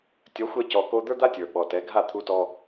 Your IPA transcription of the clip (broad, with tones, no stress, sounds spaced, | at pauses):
tʲ ɒ˩˥ xʷ ɛ˧ c ɔ˩ k o˧ d̪ ə˞˥ d̪ a˥ tʲ ə˞˩ ɓ ɔ˩ t ɛ˩˥ ɡʱ a˥˩ t̪ʰ u˧ t ɔ˧